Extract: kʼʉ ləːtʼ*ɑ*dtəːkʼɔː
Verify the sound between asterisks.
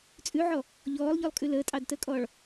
correct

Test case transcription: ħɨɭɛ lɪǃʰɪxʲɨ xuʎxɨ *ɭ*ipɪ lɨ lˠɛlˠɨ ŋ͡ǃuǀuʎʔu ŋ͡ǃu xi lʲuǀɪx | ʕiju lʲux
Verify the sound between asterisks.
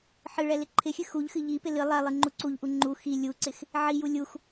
incorrect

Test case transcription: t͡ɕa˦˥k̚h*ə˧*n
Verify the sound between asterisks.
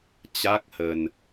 correct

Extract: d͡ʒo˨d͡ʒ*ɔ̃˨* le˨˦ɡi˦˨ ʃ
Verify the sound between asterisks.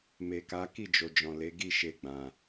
correct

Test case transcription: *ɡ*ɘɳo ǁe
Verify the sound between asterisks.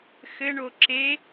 incorrect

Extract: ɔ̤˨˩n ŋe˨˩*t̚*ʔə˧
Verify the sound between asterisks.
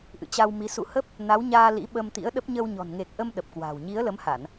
incorrect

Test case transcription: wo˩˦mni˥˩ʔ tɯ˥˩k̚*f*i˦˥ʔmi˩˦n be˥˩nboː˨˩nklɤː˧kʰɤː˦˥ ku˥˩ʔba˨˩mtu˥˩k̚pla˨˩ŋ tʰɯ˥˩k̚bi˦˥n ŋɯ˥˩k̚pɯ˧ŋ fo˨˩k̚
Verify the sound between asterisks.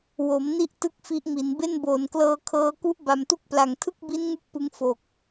correct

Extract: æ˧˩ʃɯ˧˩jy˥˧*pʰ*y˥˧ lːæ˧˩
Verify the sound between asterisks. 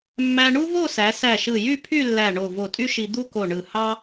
correct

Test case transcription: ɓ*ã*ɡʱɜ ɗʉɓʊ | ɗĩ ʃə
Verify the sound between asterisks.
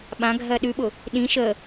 correct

